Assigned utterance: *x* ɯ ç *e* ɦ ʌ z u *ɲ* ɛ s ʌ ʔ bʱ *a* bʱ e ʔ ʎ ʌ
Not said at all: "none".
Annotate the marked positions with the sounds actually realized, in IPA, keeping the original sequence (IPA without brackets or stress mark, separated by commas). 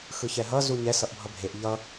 x, ɛ, ɲ, ʌ